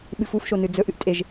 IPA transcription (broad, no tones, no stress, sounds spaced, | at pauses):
ɓ ɨ f u f ʃ o n ɨ d͡z ɵ ʔ ɨ ʔ tʼ e ʒ